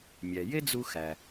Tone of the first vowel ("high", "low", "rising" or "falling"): low